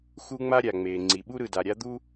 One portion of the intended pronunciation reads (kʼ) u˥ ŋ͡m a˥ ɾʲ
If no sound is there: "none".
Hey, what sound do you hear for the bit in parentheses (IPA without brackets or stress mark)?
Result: x